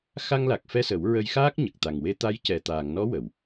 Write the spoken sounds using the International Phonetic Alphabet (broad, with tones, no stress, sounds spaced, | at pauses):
x a˧ ŋ l a˨˩ k̚ f ɛ˧ s ə˨˩˦ w ɹ ə˧ j x aː˦˥ k̚ ɲ ə˨˩ k̚ t̪ a˨˩ ŋ w e˧ t̪ a˧˥ j c ɛ˨˩ t̪ aː˨˩˨ ŋ n ɔ˧˥ w ə˨˩˨ w